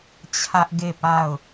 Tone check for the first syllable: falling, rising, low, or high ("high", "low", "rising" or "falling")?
high